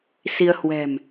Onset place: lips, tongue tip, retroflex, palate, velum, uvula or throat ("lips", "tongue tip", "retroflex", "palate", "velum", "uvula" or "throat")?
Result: tongue tip